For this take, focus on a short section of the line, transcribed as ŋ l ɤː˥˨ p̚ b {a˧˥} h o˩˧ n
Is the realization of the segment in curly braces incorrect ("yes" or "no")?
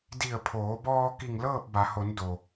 yes